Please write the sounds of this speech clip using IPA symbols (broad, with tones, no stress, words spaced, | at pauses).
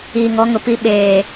iː˨ŋɔ˨˦ŋʊ˨pi˦˨ ɓeː˨